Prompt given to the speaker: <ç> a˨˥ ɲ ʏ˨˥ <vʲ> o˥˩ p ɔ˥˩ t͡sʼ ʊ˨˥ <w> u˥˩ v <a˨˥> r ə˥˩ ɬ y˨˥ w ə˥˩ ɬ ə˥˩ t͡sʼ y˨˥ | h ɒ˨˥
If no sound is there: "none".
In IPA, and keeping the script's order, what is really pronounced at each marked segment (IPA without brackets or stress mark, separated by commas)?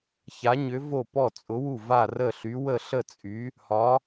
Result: ç, v, w, a˥˩